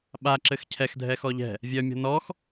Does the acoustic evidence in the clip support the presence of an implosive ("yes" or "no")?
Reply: yes